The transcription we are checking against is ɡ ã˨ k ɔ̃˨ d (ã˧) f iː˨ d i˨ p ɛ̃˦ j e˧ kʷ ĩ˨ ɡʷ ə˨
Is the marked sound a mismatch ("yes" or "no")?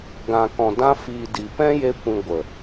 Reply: no